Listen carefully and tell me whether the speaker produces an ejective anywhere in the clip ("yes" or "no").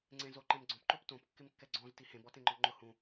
no